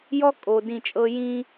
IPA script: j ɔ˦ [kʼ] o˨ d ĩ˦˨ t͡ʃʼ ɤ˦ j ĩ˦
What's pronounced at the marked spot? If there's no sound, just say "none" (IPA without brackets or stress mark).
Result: kʼ